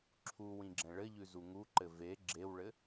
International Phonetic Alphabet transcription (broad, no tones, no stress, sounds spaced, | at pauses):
ǁʰ u w ĩ ɡ͡ǁ ɛ̃ ɭ ɘ ʎ ʉ z u ŋ u ǃ ɘ v e ɡ͡ǁ e w ɭ ɘ